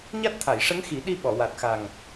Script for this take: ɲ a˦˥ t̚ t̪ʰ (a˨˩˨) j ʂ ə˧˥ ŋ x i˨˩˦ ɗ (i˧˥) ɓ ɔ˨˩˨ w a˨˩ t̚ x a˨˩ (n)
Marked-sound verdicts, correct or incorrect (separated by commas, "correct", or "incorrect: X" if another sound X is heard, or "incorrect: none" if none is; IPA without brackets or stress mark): correct, incorrect: i˧, incorrect: ŋ